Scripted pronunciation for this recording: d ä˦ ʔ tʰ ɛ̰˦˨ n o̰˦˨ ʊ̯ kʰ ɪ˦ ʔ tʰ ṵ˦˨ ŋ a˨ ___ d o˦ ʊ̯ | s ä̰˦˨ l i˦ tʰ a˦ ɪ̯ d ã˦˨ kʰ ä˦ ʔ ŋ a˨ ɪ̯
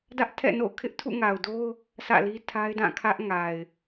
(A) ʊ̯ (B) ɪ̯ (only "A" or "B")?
A